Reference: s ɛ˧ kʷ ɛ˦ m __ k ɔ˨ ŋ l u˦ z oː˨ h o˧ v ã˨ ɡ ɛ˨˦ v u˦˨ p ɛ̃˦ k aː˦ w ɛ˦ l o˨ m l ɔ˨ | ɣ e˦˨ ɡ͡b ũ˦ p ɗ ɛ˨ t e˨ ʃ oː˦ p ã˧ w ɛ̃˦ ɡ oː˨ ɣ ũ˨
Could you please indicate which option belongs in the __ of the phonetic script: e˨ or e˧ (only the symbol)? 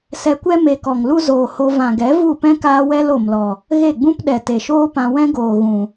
e˧